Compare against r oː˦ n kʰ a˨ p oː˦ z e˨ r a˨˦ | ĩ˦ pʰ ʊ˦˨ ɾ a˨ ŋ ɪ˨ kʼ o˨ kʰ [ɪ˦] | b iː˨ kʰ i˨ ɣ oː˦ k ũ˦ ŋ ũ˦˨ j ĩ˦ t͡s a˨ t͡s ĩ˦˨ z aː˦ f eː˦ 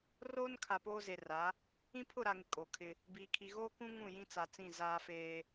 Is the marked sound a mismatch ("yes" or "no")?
no